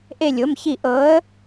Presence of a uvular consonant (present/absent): absent